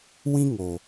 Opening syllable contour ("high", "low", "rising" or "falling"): high